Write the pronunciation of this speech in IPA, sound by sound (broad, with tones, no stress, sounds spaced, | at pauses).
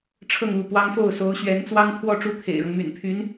ʈ͡ʂʰ ɤ˥˧ ŋ u˥˩ p w ɑ˥ ŋ f o˥˩ ʊ̯ s o˧˥ ʊ̯ ɕ ɥ ɛ˧˥ n t͡s w ɑ˥ ŋ t̪ʰ w ɔ˥˧ ʈ͡ʂ u˥˩ t̪ʰ ḛ˨˩ ɪ̯ ɻ ɤ˦ ŋ m y̰˨˩ n pʰ y˧˥ n